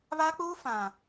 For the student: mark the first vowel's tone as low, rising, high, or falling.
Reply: high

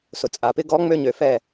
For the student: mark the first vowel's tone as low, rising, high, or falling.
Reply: low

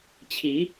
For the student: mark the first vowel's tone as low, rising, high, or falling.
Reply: rising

